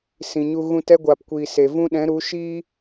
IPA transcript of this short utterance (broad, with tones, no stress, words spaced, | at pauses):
sĩ˨ɲu˧ ɣũ˧t ɛ˦ɡʷaː˨pkʷiː˨ se˨ vũ˦ɗɛ̃˨˦ ɾu˨˦ ʃiː˦